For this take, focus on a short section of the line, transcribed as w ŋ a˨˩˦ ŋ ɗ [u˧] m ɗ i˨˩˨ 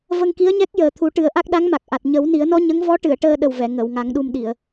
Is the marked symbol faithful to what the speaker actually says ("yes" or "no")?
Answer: yes